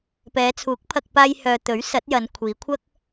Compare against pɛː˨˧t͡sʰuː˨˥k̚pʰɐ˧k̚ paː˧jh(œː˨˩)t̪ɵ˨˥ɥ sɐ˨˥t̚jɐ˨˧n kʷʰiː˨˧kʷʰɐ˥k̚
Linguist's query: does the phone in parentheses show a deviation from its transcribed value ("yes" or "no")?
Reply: yes